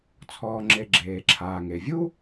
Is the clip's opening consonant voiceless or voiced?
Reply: voiceless